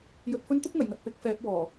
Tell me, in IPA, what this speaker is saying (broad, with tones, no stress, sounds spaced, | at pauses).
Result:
j ɵ˧ t̚ f ɵ˥ n t̪ ʊ˥ k̚ ŋ ɐ˨˩ j ŋ ɐ˨ t̚ p ɪ˨˥ k̚ f ɛː˨˥ p̚ w ɔː˨˩